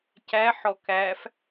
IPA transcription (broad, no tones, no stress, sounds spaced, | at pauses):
c æ ħ ɔ k æ f